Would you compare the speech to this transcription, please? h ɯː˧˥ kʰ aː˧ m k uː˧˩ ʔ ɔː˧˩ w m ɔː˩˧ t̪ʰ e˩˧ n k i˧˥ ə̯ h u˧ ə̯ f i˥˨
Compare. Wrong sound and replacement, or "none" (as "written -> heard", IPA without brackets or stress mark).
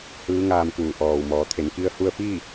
kʰ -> ŋ